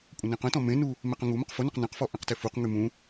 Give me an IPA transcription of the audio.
kʷʼ ə̃ n ẽ q ə̃ t ɔ̃ m ẽ n u | m e q ə̃ ŋ u m ə q f ʊ n ʊ q n ɛ̃ q f ɔ ʔ ɛ̃ q t e f u q ŋ y m ũ

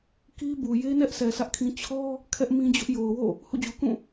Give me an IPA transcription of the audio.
k i˦ b u˨ j e˦ n ɛ˦ ʔ s ɛ˨ sʰ ä˦ ʔ kʰ ĩ˦ t͡ɕʰ ɔ˦ | kʰ ɛ˦ ʔ m ĩ˦ d͡ʑ ʊ˦ ʔ j o˨ ʊ̯ w o̰˦˨ | h ṵ˦˨ d͡ʑ u˨ k ũ˦˨

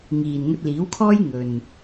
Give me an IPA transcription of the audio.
ŋ iː˨ n ŋ ɵ˧ t̚ l iː˨˥ w kʰ ɔː˥ j ŋ ɵ˨ n

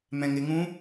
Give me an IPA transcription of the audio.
m ɛ̃ ŋ ɪ ŋ ũ

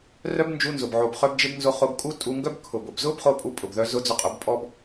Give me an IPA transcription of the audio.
r œ˦ b n d͡ʒ u˧ n z ʊ˨ b ʕ o˨ b χ œ˧ b d͡ʒ ɪ˧ b n z o˧ χ o˧ b kʼ u˦ tʼ u˧ ŋ ɡ œ˦ b kʰ ʊ˨ b ʊ˨ b z ʊ˦ b χ o˧ pʼ u˧ pʼ ʊ˨ b ð œ˧ z ʊ˧ d͡z ʊ˧ qʼ ʊ˨˦ b pʼ ɔ˦ b

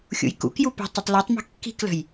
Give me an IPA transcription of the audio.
xʲ ṵ j k ṵ k j u p e̤ tˤ u tˤ l e tˤ m i̤ kː i̤ k l ə̤ j

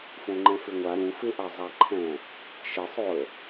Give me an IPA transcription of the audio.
f õ ŋ͡ǃ ɛ̃ f ɪ ŋʷ a ɾ ũ f ɪ ʔ a zˤ a ǃʰ ɛ̃ | ʃ ɪ sˤ o ə̯

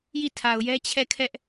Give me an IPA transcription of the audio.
j i˦˨ tʰ a˨ ʊ̯ j ɛ˦ t͡ɕʰ ɛ˦˨ kʰ ɛ˦ ʔ

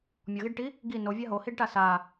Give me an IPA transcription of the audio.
mʲ ɔ ɣ i ɖ ʈ i | ɡ i n o vʲ a ɦ o h i ɖ ʈ a s a

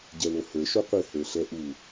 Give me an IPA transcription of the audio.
ɟ ɛ l o h ə˞ ʃ o qʷ ɨ h ə˞ ɬ ɛ ʔ u

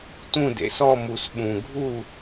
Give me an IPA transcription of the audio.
t ũ˥˨ d ḛ˩˧ s ɔ˥˨ m u˨˩ s ɓ ũ˨˩ ɡʱ u˥˨

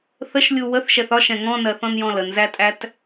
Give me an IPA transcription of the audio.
θ ə ʃ lʲ u w ə θ ʃ ɛ θ ɒ ʃ ɛ̃ ŋ ɔ̃ n ɜ θ ɔ̃ n j ɔ̃ l ə n z æ tʼ æ t

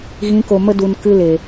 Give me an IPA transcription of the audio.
ɣ ĩ˨˦ k o˨ m ə˧ d u˨ n k ɨ˧ l e˨

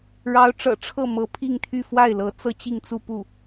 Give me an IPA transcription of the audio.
ɻ ɑ˧˥ ʊ̯ ʈ͡ʂ ɤ̰˨˩ ʈ͡ʂʰ ɤ˥˩ m ɤ˧˥ pʰ i˥˧ ŋ t̪ʰ y˥˧ f w a˥˩ ɪ̯ l ɤ˧˥ t͡s ɤ˥ t͡ɕ i˥˧ ŋ t͡s u˥˧ p u˥˩

